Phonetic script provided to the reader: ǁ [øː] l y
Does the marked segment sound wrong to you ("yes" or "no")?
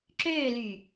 no